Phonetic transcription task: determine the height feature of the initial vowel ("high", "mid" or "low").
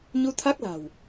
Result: high